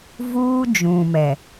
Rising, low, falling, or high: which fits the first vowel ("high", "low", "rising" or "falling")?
high